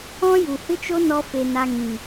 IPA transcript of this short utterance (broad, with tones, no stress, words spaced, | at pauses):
ɔ̃˦ju˨hɨ˦t͡ʃo˦ nɔ˦ fe˧na˧ŋĩ˨